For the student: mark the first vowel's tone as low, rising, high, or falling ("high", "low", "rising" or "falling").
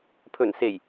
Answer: low